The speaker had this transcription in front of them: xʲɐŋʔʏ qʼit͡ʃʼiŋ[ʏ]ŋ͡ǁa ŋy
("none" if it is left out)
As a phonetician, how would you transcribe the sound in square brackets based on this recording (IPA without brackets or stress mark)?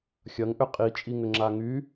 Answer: ʏ